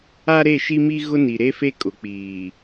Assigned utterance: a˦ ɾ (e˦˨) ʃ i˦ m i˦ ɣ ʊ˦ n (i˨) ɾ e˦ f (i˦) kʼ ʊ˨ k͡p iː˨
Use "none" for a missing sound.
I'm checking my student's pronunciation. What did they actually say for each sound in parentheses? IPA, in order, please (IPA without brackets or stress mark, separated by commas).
e˦˨, i˨, e˦